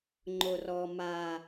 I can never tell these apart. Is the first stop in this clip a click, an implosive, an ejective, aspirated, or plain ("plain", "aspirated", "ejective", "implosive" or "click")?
click